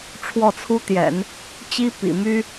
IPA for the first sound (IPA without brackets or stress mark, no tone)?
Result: ʈ͡ʂʰ